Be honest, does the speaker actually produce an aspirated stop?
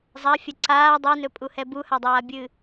no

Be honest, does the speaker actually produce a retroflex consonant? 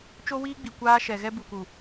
no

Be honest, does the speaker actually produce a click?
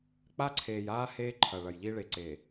yes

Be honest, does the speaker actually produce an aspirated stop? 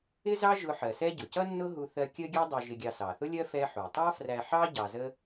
no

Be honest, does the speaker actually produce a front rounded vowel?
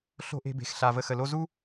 no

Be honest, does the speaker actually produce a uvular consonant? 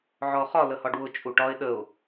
yes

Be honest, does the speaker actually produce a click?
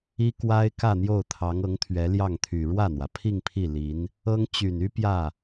no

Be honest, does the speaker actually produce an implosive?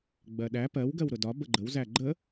yes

